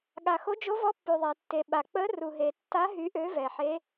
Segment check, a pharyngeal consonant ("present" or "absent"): present